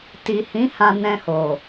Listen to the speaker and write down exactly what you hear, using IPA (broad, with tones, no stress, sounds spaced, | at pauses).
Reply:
t i˨ h ĩ˨˦ h ã˧ n ɛ̃˧ h o˨